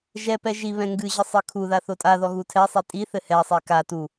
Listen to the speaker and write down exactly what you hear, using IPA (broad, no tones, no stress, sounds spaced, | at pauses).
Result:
ʒ ɛ p ɛ ʒ i β ɛ̃ ŋ ɡ ɨ ʑ ɘ sˤ ɨ kʰ u ð a θ o tʼ a ð ɔ ɣ u tʰ ɛ sˤ i tʼ i θ ɘ h ɛ sˤ i k a t u